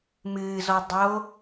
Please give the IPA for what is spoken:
m ɨː z ɔ dˤ o

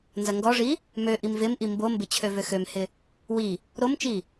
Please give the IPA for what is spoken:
n z ɐ ŋ ɡ ɔ ʐ i | m ø ʔ i m v ɪ m ʔ i m b o m b ɪ t͡ɕʰ ø v ø x ø m h ɪ | w i | ɾ o m t͡ʃ i

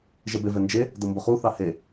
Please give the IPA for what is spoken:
ʒ ɛ b e v ɛ n d͡ʒ e | d ɤ m b ʊ χ u θ ɑ h e

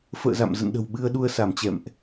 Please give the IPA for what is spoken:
f ə̰ː˧˨ z a̰˧˨ m z ə̰˧˨ n ɗ ə̤˨˩ w ɓ ɨ˧ ə̯ ɗ u˧ ə̯ s a˧˩ m t͡ɕ ɛ̰˧˨ m ʔ

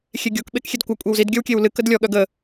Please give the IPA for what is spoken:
xʲ e ɡʲ o k ɓ e k xʲ e d kʷ ɐ kʷʼ e w z i d ɡʲ œ w kʲ e w l ɨ k ə d lʲ ɔ ɠ œ ɡ ə

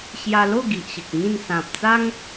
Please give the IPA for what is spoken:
ɕ j a˧ l o˥˧ ɡ i˨ ʔ ɕ ə˨ k̚ ŋ ĩ˥˧ n s ã˨ p̚ t͡s a˦ ŋ

